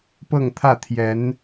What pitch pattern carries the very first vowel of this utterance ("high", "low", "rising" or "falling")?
falling